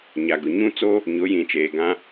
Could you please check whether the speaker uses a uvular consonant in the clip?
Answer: no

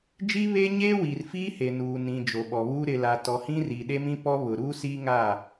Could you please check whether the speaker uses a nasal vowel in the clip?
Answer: yes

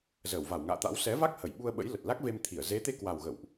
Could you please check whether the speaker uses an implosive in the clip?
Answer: yes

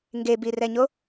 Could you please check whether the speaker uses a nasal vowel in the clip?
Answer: no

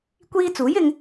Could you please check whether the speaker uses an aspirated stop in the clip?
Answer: no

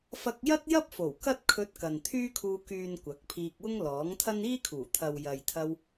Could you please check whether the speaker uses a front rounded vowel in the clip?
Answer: yes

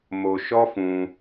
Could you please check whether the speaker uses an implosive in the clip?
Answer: no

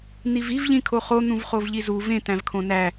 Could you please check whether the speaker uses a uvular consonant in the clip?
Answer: yes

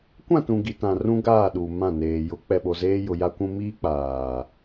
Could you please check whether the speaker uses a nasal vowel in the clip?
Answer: yes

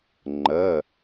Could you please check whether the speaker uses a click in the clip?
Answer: yes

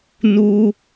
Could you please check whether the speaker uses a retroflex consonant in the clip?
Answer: no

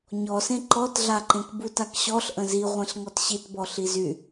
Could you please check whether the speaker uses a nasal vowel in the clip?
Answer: yes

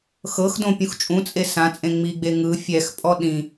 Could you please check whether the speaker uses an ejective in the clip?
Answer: yes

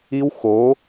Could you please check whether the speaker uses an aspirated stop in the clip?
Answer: no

